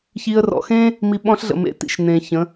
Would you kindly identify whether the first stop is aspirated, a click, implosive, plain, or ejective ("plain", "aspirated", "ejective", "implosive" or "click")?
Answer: implosive